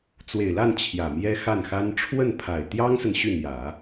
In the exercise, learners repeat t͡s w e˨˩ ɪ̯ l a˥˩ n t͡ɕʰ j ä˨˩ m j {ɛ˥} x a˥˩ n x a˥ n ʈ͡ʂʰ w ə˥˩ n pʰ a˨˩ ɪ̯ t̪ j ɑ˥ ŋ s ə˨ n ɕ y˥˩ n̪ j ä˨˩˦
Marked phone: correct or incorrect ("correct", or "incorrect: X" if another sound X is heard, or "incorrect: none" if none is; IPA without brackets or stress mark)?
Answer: correct